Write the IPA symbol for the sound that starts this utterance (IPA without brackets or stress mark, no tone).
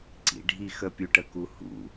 ǀ